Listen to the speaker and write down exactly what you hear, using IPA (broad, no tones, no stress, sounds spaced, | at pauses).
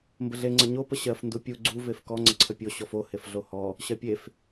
m b ə ɮ e ŋ͡ǀ ə ɲ o p ə ɕ ɜ f n d u pʲ u ɡ͡ǀ u v e f k ɔ ŋ͡ǀ ə ǀʰ ə pʲ o ɕ ɔ f o h e f ɮ o h ɔ | ɕ ɜ pʲ e f